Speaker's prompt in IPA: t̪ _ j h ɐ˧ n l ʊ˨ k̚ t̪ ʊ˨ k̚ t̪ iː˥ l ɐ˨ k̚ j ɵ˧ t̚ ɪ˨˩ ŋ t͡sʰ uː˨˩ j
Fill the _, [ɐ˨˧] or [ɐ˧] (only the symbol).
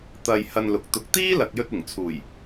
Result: ɐ˧